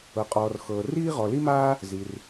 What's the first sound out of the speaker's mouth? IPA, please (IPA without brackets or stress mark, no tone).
ɤ